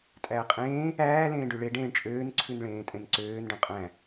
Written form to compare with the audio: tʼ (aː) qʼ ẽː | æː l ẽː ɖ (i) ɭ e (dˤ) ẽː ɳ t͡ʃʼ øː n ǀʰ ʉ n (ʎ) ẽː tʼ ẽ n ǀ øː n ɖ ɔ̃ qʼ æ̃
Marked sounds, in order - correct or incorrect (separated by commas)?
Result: incorrect, incorrect, incorrect, incorrect